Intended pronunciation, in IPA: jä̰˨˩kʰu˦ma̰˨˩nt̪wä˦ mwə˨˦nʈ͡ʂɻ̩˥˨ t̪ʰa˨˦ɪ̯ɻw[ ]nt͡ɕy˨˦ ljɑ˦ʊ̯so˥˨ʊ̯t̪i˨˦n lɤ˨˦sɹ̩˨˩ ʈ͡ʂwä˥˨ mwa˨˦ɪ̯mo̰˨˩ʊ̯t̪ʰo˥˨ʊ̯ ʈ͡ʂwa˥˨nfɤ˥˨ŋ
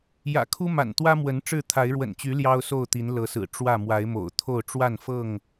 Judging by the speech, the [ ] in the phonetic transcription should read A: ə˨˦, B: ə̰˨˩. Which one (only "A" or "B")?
B